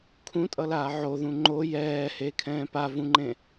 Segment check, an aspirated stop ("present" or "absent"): present